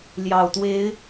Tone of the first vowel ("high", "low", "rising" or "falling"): low